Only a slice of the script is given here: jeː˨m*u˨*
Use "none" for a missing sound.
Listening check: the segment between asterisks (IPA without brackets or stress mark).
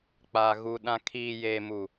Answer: u˨